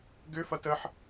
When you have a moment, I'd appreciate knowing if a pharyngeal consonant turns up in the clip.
yes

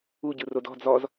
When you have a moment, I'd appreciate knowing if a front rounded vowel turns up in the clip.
no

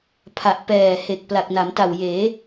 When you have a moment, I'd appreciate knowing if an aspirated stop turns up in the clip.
yes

